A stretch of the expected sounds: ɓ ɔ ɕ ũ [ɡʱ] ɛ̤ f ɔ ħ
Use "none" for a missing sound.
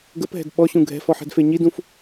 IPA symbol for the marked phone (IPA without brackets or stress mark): ɡʱ